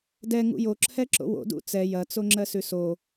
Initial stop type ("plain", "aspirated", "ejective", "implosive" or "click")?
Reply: plain